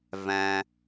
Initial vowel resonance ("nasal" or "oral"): nasal